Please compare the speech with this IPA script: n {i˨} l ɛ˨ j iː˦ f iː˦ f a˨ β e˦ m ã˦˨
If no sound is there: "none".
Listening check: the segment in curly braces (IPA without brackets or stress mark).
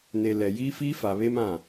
e˨